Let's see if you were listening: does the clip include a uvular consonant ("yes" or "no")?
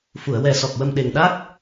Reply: no